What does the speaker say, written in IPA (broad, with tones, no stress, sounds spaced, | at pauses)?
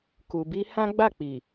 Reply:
k u˨ b i˧ h ã˦ ɡ͡b a˦˨ k͡p i˨